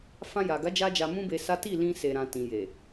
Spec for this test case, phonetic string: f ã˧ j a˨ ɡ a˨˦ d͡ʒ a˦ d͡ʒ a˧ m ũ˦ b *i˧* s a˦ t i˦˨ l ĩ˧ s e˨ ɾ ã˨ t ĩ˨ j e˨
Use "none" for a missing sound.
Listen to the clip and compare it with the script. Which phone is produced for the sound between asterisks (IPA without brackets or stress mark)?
e˧